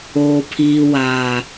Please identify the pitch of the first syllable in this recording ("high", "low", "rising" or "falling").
low